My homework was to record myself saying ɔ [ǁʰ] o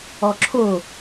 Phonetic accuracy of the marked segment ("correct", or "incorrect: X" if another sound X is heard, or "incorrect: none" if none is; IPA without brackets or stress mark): correct